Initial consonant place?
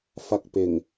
labial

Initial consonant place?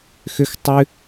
velar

